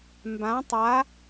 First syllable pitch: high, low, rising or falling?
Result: rising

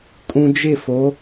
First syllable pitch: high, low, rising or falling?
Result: low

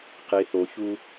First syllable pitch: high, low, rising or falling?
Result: low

